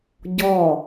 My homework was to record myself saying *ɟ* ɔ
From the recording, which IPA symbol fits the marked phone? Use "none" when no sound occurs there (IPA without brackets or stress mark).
ɟ